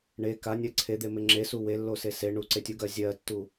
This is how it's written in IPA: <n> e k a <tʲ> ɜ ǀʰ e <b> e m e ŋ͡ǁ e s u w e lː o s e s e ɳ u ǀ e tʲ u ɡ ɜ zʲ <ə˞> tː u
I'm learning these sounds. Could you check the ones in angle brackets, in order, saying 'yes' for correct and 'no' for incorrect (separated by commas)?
no, no, no, no